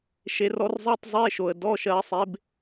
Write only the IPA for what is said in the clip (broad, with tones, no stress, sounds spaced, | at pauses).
ʃ e˨˦ r ɔ˨˦ r zˤ e˧˥˧ tˤ zˤ e˧˥˧ ʃ o˨˩ ə̯ d ɔ˧˥˧ ʃ ɜ˨˦ sˤ e˨˦ b